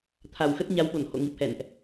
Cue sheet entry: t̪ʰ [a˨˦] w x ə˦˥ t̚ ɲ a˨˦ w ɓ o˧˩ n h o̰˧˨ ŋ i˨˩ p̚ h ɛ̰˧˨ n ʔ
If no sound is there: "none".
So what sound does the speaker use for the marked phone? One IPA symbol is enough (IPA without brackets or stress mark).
a˨˩